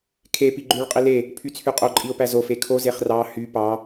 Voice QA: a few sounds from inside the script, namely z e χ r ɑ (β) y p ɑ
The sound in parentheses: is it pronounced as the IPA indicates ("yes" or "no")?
no